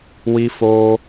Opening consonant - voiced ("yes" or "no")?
yes